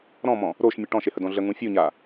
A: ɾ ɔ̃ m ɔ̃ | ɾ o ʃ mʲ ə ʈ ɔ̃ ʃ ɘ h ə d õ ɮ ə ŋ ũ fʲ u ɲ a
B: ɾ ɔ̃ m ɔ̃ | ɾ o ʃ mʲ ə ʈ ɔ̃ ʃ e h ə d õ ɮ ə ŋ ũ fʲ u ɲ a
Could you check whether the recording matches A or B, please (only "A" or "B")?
B